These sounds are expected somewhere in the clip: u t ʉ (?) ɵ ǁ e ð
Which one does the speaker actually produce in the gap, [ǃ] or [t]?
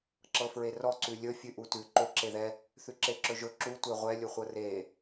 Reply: ǃ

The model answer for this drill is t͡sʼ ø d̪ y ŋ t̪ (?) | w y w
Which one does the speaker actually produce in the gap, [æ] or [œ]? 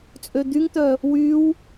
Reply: œ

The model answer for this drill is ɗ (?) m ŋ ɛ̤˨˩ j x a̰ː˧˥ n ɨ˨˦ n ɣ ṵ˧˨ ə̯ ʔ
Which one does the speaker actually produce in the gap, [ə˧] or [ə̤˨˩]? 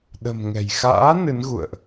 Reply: ə̤˨˩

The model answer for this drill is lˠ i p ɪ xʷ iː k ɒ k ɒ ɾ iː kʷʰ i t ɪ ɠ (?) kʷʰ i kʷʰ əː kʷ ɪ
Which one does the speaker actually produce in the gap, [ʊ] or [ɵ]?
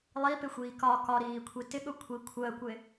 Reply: ʊ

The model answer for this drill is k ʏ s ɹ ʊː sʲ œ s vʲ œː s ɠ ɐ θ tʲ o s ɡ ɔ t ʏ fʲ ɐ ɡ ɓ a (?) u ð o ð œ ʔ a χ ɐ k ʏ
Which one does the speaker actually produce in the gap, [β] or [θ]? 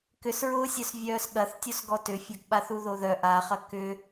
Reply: θ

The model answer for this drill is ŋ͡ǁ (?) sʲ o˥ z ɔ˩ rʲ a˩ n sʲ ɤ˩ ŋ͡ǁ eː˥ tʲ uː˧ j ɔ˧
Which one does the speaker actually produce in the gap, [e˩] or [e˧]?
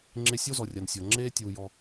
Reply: e˧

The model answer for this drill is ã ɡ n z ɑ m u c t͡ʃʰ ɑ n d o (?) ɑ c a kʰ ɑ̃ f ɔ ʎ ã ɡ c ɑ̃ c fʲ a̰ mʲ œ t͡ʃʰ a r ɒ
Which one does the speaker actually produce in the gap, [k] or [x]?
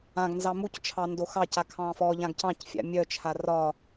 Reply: x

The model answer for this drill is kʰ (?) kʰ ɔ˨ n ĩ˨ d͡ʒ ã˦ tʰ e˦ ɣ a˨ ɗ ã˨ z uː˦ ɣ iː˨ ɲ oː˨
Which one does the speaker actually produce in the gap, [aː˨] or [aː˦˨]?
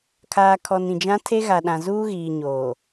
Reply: aː˨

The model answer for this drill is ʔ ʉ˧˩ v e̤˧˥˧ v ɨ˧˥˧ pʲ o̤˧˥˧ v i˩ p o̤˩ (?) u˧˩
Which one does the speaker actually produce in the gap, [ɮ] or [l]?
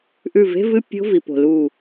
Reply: l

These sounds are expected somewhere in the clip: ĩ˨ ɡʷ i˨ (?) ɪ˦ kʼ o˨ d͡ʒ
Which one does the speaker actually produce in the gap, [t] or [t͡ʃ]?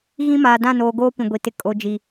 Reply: t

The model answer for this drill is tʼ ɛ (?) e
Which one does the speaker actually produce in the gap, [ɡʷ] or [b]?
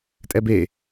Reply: b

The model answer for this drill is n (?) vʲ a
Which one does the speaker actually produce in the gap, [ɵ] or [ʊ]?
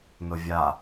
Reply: ʊ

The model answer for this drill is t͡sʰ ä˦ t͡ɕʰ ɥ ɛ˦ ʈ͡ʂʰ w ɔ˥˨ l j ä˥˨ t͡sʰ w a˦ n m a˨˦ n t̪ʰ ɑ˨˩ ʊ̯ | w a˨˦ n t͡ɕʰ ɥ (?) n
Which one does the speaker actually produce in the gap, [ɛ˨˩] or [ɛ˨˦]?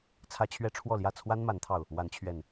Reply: ɛ˨˩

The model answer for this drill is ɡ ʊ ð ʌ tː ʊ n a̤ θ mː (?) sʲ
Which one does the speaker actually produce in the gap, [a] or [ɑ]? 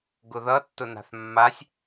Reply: a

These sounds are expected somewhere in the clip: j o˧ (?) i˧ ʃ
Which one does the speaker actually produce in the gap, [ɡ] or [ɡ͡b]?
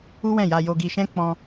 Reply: ɡ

